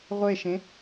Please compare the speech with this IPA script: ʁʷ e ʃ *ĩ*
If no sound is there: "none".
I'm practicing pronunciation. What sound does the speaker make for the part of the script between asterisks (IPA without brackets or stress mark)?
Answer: ẽ